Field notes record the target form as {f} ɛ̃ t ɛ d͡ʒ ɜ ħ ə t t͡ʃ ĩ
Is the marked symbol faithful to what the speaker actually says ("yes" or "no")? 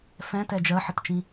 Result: yes